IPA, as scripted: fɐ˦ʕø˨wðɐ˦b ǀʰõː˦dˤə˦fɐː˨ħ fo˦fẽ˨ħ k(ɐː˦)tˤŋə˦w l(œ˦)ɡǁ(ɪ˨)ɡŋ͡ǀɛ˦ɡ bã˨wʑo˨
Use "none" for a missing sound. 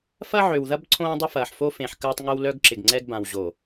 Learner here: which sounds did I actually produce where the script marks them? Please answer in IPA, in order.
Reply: ɐː˦, œ˦, ɪ˨

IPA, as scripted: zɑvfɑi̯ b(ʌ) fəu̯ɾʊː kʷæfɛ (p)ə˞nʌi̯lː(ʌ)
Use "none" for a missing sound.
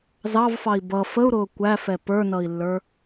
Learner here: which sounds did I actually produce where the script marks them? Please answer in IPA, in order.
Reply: ʌ, p, ə˞

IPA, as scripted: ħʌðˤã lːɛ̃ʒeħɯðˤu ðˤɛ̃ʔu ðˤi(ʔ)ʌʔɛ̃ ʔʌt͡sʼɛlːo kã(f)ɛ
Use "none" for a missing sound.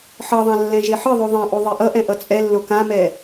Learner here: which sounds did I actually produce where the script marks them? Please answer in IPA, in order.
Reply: ʔ, m

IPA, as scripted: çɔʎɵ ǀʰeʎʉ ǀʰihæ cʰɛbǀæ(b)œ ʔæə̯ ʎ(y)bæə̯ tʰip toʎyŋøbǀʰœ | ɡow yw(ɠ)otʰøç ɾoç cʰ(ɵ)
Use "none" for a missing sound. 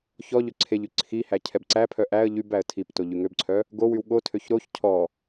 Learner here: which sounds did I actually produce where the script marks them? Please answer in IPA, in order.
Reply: pʰ, y, ɠ, ɔ

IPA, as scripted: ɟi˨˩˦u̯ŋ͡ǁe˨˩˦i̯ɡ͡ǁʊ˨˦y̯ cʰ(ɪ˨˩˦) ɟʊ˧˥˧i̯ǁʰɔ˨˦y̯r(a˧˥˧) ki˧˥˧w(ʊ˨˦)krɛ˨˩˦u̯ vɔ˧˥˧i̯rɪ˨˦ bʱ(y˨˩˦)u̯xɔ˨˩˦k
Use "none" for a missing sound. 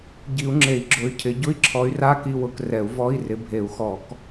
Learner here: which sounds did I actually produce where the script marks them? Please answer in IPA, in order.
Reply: ɪ˨˩˦, a˧˥˧, ʊ˨˦, e˨˩˦

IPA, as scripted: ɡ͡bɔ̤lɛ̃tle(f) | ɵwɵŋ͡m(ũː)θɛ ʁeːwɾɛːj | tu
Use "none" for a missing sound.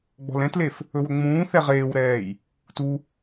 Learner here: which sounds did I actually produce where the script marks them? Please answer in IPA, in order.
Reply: f, ũː

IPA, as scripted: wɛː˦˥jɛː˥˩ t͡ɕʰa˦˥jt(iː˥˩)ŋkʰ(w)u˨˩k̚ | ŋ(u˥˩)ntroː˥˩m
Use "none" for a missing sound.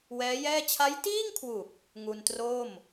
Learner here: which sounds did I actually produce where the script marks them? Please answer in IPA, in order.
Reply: iː˥˩, w, u˧

